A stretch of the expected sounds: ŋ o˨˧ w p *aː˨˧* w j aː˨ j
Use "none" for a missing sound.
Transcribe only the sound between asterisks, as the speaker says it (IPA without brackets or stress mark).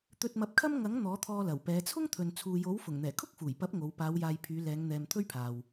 aː˨˧